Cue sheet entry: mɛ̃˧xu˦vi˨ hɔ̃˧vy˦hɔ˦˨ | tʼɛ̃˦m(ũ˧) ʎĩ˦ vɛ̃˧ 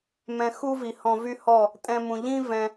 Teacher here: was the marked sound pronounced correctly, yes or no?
yes